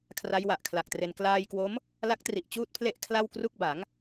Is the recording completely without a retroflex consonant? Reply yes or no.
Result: yes